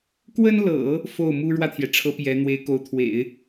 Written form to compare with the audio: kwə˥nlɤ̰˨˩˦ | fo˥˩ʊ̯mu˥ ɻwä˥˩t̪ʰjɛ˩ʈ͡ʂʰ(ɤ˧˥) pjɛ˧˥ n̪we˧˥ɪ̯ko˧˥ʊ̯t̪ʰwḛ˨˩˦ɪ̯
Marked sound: correct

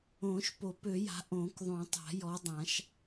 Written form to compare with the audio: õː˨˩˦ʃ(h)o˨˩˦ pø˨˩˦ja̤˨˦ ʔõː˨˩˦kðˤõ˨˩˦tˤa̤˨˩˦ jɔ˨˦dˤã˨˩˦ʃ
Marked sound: incorrect: p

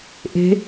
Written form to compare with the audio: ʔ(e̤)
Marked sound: correct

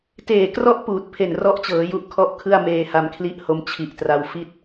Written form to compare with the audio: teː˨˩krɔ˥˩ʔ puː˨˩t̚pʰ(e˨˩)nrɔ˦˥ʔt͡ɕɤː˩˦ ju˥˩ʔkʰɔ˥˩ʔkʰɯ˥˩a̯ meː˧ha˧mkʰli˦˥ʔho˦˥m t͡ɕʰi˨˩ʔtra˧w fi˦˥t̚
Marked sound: correct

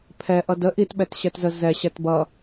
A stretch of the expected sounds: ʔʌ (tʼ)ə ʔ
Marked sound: incorrect: d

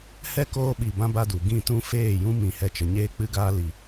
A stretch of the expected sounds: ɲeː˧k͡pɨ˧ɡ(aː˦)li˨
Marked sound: incorrect: aː˧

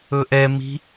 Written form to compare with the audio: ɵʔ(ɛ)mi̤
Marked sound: correct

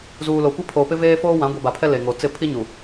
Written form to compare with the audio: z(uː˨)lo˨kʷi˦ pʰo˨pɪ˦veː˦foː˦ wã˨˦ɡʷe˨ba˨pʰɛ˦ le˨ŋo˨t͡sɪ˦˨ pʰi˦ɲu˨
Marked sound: correct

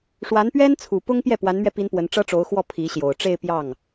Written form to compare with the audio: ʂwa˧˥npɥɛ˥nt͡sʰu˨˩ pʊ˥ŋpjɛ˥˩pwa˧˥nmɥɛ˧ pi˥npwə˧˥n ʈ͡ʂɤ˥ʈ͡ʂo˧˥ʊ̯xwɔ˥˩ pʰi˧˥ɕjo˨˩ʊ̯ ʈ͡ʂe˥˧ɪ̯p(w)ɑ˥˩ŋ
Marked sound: incorrect: j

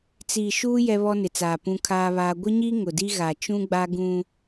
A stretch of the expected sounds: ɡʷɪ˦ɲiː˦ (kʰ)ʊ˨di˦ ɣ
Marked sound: incorrect: ŋ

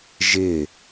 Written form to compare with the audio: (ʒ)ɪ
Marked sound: correct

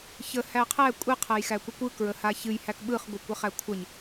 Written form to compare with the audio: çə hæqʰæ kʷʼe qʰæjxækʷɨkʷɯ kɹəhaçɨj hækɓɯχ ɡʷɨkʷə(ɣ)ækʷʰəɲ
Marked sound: incorrect: χ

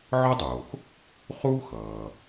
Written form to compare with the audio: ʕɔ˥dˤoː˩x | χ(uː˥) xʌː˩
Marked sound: correct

